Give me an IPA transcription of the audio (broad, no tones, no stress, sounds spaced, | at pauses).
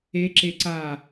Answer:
e ǁ e ǀ a